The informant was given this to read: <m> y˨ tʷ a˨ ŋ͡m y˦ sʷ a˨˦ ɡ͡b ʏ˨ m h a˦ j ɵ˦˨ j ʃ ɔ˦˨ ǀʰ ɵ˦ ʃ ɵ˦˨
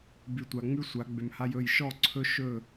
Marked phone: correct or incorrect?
incorrect